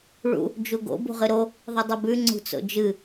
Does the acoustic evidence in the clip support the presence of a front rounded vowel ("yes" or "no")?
no